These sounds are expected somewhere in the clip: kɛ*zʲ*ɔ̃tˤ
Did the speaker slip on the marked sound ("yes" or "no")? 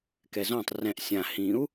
yes